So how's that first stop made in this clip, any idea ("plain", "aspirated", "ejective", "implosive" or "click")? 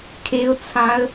aspirated